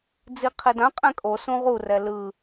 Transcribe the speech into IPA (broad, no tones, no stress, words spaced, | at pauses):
d͡ziqʰedãqʼɛ̃ kʼo sũʁurɛ lɯ